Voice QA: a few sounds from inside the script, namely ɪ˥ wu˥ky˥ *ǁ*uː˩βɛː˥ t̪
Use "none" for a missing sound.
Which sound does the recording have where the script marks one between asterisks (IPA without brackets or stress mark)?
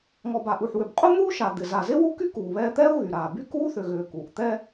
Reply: k